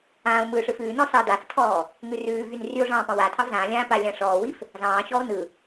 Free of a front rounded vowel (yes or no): no